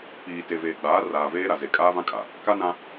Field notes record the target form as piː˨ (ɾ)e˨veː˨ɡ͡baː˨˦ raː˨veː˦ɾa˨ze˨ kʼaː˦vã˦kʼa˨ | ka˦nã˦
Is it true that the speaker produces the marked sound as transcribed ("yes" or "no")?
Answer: no